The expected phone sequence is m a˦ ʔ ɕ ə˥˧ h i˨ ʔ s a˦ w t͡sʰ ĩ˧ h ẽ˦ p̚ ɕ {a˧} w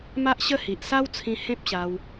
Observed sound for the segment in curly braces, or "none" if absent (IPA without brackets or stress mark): a˧